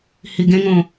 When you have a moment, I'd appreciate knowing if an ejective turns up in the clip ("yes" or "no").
no